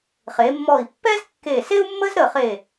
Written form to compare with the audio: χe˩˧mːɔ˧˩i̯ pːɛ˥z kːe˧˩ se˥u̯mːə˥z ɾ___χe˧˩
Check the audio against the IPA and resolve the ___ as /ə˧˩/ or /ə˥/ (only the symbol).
ə˧˩